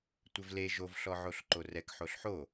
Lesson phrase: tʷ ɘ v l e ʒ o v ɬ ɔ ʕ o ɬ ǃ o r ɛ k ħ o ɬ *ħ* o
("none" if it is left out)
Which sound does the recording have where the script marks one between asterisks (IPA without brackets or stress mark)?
ħ